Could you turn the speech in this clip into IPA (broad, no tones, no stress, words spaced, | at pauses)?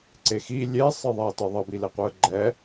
ǀexi lʲesˤɨ ðˤɛə̯tɨðˤʌbi leqʷɨə̯ɡ͡ǃɛ